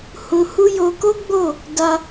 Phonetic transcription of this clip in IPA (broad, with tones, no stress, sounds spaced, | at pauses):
h ũ˧ h u˦ j o˧ k o˦ ɡ͡b o˦˨ | d a˧